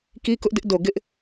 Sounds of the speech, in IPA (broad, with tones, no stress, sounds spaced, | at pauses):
k i˦ k ʊ˦ ʔ d ɪ˦ ʔ d o˨ ɡ ɪ˦ ʔ